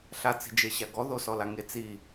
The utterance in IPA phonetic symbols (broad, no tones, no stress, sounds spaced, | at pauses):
ɬ a t͡s i̤ d͡ʒ e ɕ a ɡ ɔ ð o s ɔ l a ŋ e t͡s i